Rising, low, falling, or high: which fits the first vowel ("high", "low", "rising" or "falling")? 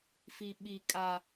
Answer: high